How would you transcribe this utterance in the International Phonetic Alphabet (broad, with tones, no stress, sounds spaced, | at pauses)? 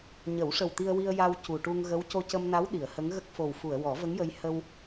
ɲ ə˨˩˦ w ʂ ə˨˩ w t̪ i˧ ə̯ w i˧ ə̯ j a˧ w c u˨˩ ʈ u˧ ŋ ɣ ə˧˥ w c o˧ c ə˧ m n a˧˥ w ɗ i˨˩˨ ə̯ h ə˧˥ ŋ ɣ ə˦˥ k̚ f o˨˩ w f u˨˩˨ ə̯ w ɔ˨˩˦ v ə˧˥ ŋ j ə˧ j h ə˧ w